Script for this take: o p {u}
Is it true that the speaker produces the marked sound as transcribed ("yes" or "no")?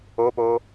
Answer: no